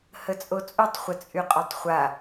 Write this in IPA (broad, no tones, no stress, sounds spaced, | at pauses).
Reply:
h ə t͡sʼ o t͡sʼ u tˤ χʷ ə t͡sʼ y qʼ o tˤ χʷ a